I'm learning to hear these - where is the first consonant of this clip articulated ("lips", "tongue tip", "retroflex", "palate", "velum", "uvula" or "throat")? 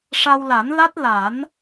retroflex